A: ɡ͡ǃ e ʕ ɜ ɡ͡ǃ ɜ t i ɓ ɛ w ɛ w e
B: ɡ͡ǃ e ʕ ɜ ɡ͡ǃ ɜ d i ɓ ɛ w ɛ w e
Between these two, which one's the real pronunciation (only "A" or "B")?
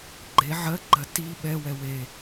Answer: A